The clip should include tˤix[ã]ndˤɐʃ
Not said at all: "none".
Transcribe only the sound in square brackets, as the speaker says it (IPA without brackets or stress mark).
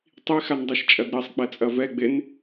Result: a